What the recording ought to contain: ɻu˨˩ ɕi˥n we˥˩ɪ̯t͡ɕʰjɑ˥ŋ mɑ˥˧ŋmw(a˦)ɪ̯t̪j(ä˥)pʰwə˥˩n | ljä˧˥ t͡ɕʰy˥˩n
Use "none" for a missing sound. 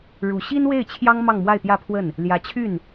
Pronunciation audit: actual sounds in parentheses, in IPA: a˥˧, ä˥˧

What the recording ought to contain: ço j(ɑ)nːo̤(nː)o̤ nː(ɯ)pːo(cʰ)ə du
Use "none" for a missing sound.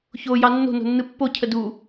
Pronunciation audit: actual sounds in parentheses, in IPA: ɑ, n, ɯ, cʰ

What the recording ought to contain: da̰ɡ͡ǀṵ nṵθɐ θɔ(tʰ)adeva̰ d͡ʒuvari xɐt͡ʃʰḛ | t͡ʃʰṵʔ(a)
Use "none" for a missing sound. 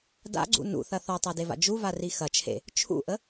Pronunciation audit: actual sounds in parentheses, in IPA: tˤ, ə

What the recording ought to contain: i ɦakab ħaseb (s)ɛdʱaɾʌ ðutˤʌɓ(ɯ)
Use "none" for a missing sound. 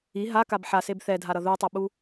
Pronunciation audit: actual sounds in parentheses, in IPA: θ, u

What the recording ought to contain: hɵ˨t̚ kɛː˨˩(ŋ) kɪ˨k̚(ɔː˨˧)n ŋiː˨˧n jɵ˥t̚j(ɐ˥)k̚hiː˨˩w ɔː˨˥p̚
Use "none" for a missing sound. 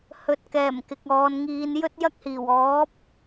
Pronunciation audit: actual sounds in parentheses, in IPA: m, ɔː˨˧, ɐ˥

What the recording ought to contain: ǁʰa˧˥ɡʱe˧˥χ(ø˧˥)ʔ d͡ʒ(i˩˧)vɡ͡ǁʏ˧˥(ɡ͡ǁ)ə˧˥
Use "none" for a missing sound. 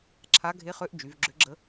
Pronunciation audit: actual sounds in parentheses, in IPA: ø˧˥, y˩˧, ɡ͡ǁ

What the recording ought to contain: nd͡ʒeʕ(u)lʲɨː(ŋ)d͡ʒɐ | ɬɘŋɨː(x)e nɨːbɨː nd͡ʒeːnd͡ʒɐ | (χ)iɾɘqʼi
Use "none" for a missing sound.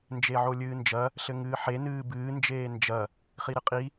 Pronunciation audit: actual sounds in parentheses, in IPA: o, n, ħ, χ

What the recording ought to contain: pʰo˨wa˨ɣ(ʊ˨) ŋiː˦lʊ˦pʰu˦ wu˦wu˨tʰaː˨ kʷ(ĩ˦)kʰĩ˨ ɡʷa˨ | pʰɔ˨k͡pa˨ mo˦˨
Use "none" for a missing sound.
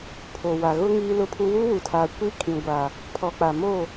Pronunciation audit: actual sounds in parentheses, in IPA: ʊ˦, i˦

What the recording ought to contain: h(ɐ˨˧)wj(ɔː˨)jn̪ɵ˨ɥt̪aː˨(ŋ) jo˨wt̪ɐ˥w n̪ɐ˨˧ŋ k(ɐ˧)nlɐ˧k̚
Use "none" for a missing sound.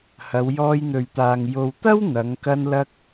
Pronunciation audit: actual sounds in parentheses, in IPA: ɐ˨˧, ɔː˧, ŋ, ɐ˧

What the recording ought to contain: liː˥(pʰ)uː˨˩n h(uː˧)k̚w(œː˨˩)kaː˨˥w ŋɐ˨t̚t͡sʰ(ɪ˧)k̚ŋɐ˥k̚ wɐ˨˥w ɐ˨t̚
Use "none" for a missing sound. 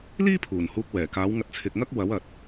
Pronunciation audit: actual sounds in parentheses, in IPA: pʰ, uː˧, ɛː˨˩, ɪ˨

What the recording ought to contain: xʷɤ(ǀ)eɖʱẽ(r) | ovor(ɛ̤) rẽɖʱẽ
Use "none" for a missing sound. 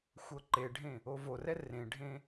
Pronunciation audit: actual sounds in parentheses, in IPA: ǃ, none, ɛ

